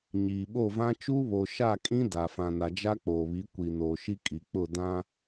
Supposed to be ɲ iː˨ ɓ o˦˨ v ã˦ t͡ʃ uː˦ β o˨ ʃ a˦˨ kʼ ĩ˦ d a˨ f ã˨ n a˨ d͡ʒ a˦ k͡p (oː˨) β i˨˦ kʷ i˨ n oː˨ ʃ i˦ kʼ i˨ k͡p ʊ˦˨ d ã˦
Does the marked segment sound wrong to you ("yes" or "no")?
no